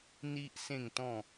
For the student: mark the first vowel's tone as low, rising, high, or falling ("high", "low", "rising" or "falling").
high